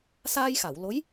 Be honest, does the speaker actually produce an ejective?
no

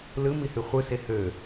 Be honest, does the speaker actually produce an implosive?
no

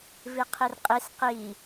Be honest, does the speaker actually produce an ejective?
yes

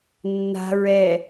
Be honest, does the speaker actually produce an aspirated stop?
no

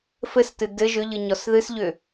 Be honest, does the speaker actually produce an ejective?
no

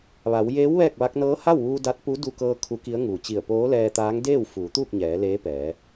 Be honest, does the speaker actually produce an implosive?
no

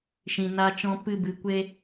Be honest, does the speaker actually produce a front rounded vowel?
no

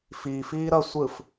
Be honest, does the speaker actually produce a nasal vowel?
no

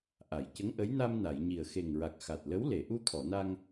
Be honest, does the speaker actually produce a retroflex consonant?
no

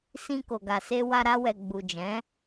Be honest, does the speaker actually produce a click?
no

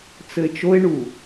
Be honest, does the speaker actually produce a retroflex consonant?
yes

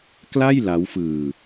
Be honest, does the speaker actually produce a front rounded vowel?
no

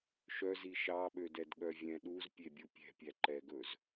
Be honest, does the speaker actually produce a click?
yes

